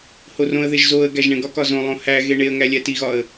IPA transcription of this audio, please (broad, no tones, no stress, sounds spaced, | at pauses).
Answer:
h o r õ ə̯ ð e ʒ z o ə̯ ɡ æ ʒ ɳ ẽ ɡ ɒ k ɒ z õ lˠ õ h æ ɣ e ɳ e ə̯ ŋ æ lʲ æ t i ɣ ɒ ə̯